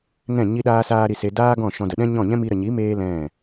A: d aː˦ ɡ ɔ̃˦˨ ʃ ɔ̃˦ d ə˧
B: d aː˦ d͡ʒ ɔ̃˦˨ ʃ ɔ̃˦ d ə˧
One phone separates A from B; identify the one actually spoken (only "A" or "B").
A